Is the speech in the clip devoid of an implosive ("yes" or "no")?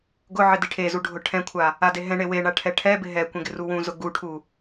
yes